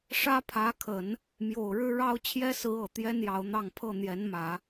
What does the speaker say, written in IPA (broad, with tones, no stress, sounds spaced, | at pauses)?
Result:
ʂ ä˥ pʰ ä˧˥ kʰ ə˨˩˦ n | m j o˨˩ ʊ̯ ɻ ɻ̩˥ ɻ ɑ˥ ʊ̯ t͡ɕʰ j ɛ˥ s ɹ̩˧˥ ɤ˨˩ t̪ j ɛ˥ n j ɑ˧˥ ʊ̯ n̪ ɑ˥˧ ŋ pʰ ɤ˥˩ n̪ j ɛ˧˥ n m ä˨˩˦